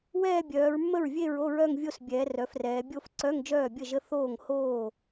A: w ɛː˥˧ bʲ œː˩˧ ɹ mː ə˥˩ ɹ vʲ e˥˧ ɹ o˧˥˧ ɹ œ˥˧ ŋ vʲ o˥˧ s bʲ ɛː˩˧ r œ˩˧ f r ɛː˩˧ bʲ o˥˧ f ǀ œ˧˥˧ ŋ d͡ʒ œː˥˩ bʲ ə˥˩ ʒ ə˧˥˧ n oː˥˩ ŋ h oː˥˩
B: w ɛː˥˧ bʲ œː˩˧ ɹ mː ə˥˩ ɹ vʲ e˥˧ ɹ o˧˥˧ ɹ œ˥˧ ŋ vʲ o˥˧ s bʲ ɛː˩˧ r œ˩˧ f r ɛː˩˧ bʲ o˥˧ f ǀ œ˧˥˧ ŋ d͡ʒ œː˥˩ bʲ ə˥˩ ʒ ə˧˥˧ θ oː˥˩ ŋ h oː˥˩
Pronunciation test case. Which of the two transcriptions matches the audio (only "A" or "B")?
B